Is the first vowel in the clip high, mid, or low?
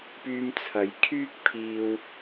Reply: high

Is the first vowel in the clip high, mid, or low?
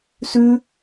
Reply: high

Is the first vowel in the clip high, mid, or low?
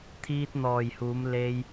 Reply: high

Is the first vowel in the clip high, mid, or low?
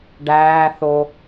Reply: low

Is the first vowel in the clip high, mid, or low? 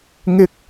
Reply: high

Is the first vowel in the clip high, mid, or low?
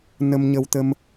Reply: mid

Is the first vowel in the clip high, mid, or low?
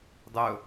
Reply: mid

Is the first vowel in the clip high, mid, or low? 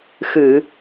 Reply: high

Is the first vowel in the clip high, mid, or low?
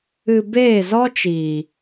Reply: high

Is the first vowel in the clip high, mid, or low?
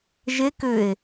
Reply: mid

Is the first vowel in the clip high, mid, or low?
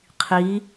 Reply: high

